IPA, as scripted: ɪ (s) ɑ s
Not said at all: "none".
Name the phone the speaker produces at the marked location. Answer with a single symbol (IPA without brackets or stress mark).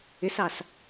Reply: s